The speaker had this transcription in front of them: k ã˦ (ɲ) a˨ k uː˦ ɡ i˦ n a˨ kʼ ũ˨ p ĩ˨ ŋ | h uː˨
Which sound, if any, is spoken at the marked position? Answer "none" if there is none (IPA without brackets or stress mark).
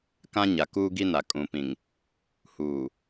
ɲ